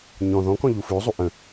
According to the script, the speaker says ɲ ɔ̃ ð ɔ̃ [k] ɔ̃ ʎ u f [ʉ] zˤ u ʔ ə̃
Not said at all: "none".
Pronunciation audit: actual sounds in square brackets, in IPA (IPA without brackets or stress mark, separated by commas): k, ʉ